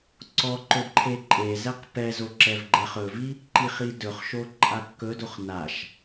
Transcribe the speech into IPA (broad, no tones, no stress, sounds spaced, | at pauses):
ǀ ɔ ǃ ɵ d ǃʰ e ǃʼ e z ɛ q p ɛ z o ǁ ɛ v ɡ͡ǃ ɛ χ ɵ v i | ǃ i χ i d ɵ χ ʃ o ǃʼ a kː ɵ d o χ n a ʃ